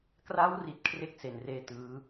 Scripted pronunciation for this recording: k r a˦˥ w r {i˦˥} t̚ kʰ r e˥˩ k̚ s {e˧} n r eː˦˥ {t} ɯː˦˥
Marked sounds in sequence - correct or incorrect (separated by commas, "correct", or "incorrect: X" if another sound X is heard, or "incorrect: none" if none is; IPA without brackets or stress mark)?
incorrect: i˨˩, incorrect: e˨˩, correct